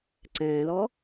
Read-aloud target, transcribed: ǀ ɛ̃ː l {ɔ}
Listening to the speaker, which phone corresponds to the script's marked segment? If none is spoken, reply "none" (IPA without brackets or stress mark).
ɔ